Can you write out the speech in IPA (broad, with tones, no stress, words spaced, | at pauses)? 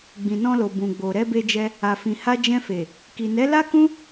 ɡ͡bĩ˨nɔ̃˧lo˨ bũ˨ɡ͡bo˨ ɾɛ˧be˧d͡ʒɛ˧ | a˨fĩ˨ha˧ d͡ʒɛ̃˧fe˨ | ki˨nɛ˨˦la˦kũ˦